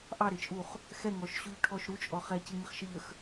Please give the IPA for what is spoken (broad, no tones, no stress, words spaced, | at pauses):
ʔɑɾɪt͡ʃʼuχ | xɛŋɔʃɕuʎʈʰɔʃ ɾut͡ʃʼɔ χɛcɪŋɪχʃəʎ əx